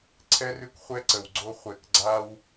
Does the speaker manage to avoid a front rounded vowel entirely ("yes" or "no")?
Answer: yes